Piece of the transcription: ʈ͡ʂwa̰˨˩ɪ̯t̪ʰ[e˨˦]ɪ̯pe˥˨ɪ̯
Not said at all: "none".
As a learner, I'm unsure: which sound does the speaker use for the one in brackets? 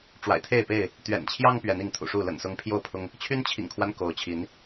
e˥˨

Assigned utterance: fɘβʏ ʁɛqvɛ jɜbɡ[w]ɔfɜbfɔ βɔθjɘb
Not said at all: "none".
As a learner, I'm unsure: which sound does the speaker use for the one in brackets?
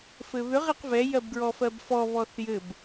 ɹ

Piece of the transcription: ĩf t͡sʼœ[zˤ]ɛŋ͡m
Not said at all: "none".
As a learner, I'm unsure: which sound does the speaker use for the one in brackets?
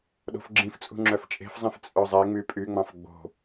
zˤ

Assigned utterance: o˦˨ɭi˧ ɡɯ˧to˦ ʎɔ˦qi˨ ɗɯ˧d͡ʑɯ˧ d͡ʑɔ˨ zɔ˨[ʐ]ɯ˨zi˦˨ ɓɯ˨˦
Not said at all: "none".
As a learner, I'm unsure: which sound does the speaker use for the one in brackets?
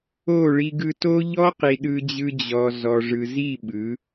ʐ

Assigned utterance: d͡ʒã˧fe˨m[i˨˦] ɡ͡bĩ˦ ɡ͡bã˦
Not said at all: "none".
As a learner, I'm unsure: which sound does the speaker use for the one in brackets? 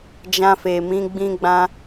ĩ˨˦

